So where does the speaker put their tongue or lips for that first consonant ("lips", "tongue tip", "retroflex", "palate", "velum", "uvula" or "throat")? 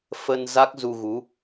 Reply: lips